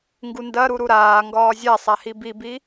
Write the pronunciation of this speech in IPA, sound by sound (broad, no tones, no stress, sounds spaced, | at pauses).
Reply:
ŋ ɡ u n d ɐ ɾ u ɾ u ɾ aː ŋ ɡ ɒː zʲ a sˤ a h i b i b i